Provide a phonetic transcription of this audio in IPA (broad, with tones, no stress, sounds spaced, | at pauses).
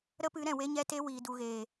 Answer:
ɾ ə˦ p ɨ˨˦ ɾ ɛ̃˨ w e˦ ɲ ɛ˦ t e˦ w iː˨ d u˨ ɣ eː˨